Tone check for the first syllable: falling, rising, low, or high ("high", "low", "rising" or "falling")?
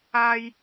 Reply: low